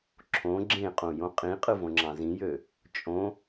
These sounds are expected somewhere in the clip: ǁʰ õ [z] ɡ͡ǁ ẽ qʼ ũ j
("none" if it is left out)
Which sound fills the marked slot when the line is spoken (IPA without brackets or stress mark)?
none